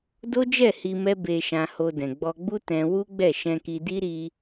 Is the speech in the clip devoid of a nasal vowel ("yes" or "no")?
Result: no